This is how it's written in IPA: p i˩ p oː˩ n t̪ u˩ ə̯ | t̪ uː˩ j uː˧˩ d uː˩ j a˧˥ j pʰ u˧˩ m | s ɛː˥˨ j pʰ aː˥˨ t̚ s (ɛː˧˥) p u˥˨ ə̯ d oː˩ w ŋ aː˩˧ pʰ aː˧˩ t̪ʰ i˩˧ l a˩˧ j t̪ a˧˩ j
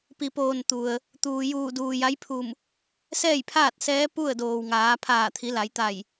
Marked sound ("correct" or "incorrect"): correct